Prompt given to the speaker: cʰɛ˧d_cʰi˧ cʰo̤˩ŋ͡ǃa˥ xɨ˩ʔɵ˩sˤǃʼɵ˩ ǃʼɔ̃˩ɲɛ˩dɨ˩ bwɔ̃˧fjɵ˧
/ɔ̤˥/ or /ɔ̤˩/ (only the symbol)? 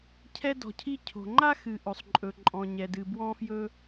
ɔ̤˩